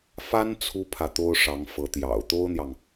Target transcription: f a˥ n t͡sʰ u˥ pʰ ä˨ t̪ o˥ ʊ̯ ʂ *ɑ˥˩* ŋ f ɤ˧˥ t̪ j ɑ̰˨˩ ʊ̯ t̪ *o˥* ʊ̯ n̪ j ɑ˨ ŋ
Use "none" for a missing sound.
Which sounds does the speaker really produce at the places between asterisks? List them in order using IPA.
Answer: ɑ˧˥, o˥

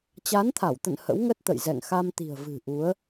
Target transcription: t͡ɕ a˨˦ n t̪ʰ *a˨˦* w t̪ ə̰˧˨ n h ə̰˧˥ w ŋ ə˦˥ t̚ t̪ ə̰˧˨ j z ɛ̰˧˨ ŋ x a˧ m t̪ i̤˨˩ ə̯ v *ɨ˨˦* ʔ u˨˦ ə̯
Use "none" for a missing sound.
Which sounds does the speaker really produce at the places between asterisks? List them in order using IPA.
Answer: a˧˩, ɨ̤˨˩

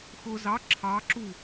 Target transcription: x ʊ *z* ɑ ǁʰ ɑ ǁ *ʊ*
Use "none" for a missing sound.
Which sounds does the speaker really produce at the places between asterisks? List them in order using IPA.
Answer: z, u

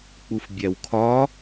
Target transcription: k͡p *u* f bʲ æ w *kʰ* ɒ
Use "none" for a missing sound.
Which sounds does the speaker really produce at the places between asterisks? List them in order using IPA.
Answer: u, kʰ

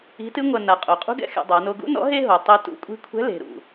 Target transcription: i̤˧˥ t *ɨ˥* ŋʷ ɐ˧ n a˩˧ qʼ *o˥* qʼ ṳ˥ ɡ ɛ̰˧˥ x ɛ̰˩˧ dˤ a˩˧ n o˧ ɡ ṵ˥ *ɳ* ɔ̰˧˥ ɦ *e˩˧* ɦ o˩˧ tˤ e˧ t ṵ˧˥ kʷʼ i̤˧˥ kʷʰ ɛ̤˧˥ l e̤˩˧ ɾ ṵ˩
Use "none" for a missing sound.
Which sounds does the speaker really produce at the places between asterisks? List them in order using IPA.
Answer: ɨ˥, o˩˧, n, e˥

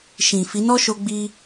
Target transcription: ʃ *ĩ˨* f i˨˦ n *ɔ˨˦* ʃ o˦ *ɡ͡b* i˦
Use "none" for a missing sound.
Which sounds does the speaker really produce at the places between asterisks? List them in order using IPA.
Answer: ĩ˨, ɔ˦, ɡ͡b

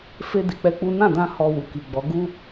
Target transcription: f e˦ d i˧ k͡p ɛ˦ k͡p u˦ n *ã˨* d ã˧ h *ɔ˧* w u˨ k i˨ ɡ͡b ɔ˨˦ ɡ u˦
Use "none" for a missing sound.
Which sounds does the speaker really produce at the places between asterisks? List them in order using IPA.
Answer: ã˦˨, ɔ˧

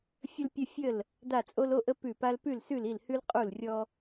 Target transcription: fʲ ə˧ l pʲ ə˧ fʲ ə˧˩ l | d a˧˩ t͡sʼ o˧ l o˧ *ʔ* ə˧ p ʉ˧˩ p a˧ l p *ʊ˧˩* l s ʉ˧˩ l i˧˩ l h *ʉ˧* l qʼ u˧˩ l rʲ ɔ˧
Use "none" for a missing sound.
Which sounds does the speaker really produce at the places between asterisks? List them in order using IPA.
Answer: ʔ, ʉ˧˩, ʉ˧

